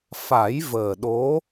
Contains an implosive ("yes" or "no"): yes